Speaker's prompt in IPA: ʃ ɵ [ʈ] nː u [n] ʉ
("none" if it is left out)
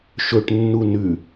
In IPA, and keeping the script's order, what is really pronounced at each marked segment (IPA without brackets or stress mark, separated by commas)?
ʈ, n